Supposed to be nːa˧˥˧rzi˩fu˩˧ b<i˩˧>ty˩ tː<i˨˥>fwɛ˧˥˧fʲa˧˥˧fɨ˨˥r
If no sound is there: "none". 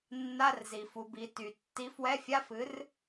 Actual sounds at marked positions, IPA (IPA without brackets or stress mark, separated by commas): i˩˧, i˨˥